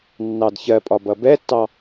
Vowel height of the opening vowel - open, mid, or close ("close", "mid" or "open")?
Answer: open